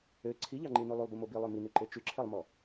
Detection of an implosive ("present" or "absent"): absent